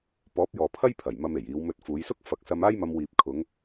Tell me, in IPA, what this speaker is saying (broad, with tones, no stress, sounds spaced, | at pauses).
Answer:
p ɔː˨˥ p̚ j ɔː˨ pʰ ɐ˥ j pʰ ɐ˨˩ j m ɐ˧ m e˨˩ j iː˨˧ w m ɵ˧ t̚ f uː˨˧ j s ʊ˥ k̚ f ɐ˨˥ k̚ s ɐ˧ m aː˥ j m ɐ˧ m w iː˨ p̚ kʰ ʊ˨˧ ŋ